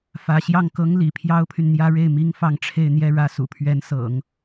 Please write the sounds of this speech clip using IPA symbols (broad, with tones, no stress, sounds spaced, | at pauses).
f ä˧˥ ɕ j ɑ˥˩ ŋ k ɤ˥ ŋ l ḭ˨˩ pʰ j ɑ˥ ʊ̯ pʰ y˨ n n̪ j ä˥ ɻ e˥˩ ɪ̯ m i˥ ŋ f ɑ˥˧ ŋ ʈ͡ʂʰ e˥˧ ɪ̯ n̪ j ɛ˥˧ ɻ ä˥˩ s ṵ˨˩ pʰ ɥ ɛ˧˥ n s ɤ̰˨˩˦ ŋ